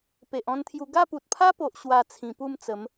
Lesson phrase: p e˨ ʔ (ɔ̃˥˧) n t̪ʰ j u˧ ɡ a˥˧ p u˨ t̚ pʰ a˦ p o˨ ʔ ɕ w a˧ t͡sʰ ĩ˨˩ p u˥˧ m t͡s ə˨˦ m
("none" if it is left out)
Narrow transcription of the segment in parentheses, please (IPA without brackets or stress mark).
ɔ̃˥˧